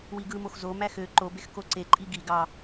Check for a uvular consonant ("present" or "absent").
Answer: absent